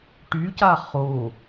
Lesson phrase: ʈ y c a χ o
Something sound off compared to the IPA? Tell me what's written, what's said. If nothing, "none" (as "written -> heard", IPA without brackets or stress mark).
none